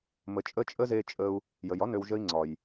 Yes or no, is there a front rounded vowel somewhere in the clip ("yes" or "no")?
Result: yes